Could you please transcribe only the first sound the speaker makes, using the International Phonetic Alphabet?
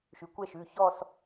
ʃ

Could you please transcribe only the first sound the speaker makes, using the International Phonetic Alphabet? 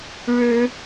ɻ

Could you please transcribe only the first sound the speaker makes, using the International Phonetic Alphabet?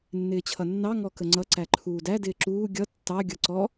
nː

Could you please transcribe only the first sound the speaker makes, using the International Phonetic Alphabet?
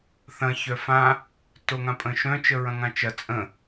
θ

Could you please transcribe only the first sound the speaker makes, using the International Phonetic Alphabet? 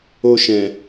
o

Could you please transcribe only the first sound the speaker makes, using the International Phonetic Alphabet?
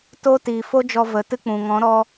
t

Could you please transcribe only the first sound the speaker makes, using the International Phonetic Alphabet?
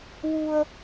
w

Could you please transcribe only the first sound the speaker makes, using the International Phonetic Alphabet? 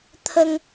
t̪ʰ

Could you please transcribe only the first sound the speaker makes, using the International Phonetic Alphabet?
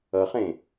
ʌ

